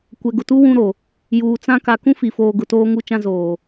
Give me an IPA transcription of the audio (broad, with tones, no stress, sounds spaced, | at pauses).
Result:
kʷ ɛ˨ ɡ ʊ˨ t u˦ w ũ˦ ɾ o˨ | j uː˨ t͡s ã˦ k a˨ k ũ˦ f i˨ f oː˨ ɡ ʊ˨ t oː˦ ŋ u˦ t͡ʃ ã˦ z oː˨